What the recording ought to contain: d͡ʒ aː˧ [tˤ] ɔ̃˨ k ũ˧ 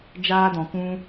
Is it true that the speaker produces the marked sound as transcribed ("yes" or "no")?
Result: no